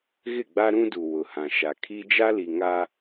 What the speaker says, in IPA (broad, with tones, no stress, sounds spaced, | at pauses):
ɣ ɪ˦˨ ɡ͡b a˦ ɾ ũ˦ d u˨ w ʊ˨ h ã˨ ʃ a˨ kʰ i˦ d͡ʒ a˦ l i˨ ŋ a˦